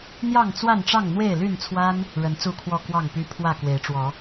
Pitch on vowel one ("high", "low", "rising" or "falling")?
falling